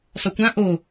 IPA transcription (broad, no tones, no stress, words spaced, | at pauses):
sˤokʷã ʔo